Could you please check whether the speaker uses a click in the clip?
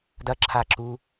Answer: yes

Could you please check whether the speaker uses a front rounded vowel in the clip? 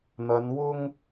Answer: no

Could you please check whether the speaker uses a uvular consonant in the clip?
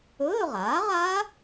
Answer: yes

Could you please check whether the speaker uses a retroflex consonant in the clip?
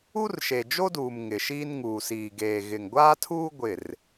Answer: no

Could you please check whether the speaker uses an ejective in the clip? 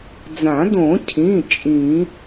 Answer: yes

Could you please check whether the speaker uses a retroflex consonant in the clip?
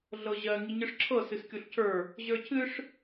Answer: yes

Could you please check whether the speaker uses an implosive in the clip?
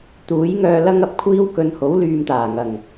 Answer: no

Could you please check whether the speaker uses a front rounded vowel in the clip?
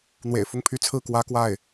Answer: yes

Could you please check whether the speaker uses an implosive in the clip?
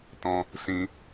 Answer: no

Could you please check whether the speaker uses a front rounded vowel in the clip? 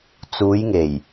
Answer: no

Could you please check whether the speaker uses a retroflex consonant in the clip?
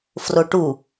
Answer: yes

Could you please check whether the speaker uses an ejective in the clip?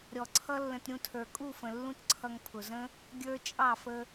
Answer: yes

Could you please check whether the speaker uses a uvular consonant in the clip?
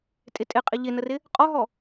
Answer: yes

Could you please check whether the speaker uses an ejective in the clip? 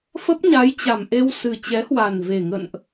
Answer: no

